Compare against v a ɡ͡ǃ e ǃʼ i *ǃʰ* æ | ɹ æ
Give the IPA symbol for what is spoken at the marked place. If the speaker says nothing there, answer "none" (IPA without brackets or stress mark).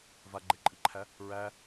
ǃʰ